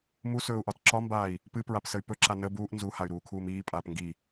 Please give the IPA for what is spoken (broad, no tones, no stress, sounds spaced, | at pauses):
m u s ɵː u̯ ʔ ɒ t ǁ ɒ m b aː i̯ | p ɨ p ɹ a p s ə y̯ p ɵ ǁ a n ə b uː ʔ n z u h a y̯ ɾ uː kʰ uː m iː pʼ aː p ŋ ɡ i